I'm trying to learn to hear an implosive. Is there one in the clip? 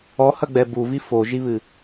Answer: no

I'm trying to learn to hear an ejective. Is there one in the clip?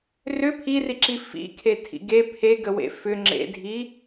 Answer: no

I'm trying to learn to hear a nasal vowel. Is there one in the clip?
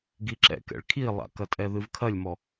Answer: no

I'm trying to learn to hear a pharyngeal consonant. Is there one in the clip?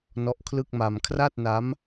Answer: no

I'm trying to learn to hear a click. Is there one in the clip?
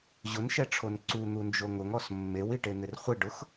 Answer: yes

